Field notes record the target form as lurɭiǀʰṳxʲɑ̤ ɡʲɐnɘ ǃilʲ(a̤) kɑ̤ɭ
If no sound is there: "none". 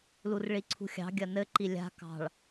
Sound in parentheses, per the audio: a̤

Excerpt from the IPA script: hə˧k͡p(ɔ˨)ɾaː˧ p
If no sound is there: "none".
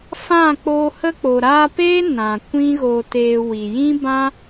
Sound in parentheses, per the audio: o˨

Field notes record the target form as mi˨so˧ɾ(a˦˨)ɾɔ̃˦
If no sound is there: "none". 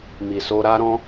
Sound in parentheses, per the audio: a˦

